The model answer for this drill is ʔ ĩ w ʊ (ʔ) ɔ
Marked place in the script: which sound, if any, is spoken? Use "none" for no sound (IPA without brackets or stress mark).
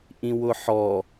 ħ